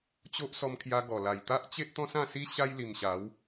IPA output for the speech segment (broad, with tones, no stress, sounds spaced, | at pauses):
t͡ɕ o˦ ʔ s ɔ˧ m kʰ j a˧ ɡ ɔ˨˩ l a˨˩ j t̪ a˦ ʔ t͡ɕ e˦ ʔ t̪ ɔ̃˦ s ã˥˧ s i˦ ɕ a˦ j l i˨˩ m ɕ a˨˦ w